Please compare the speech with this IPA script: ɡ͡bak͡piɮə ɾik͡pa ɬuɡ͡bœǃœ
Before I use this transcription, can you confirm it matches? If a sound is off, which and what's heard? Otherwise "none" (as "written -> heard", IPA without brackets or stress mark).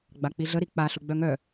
ǃ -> ŋ